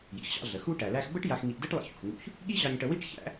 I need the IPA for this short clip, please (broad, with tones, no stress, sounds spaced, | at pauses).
j ḭ˩ x ɕ ɑ̰˧ ɮ ə˩ x u˥ ʈ æ˩ l æ˧ x b ə˥ ʈ j a˧ x ŋ i˧ ʔ d ɨ˥ ʈ lˠ ḭ˧ ç ṵ˩ x ŋ ṵ˧ ç | ɠ i˥ ʑ ɑ˧ ɲ ʈ ə˧ w i˥ ʈ ç æ̰˥